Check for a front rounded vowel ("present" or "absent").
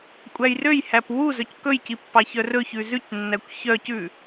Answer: present